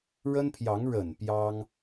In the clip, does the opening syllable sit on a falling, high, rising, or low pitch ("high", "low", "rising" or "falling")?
high